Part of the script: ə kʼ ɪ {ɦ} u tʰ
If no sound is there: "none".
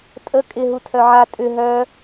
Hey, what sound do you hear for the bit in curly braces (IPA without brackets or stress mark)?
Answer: ɦ